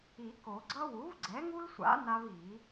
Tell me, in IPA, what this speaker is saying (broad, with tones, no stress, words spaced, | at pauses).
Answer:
i˨˩˦ko˨˩˦ɡ͡ǀʌ˦ wu˩˥vɡ͡ǀɛ˩˥ŋu˦lsʷa̰˩˥ na˦vi˨˩˦